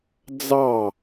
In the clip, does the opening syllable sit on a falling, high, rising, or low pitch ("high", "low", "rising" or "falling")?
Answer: falling